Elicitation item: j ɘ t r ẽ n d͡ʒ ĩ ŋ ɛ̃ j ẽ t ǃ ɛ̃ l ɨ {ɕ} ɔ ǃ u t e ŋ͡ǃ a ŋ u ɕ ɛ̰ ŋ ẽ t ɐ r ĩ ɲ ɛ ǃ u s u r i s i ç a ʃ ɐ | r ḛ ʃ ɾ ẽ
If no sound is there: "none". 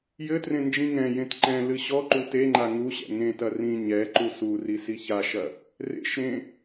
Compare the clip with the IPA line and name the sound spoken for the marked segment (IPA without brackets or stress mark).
ɕ